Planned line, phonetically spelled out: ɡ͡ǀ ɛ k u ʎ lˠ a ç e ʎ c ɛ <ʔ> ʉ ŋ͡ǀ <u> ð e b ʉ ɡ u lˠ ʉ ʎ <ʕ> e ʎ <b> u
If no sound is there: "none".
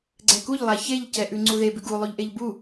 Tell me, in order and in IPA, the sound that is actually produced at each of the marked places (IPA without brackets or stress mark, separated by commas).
ʔ, u, ʔ, b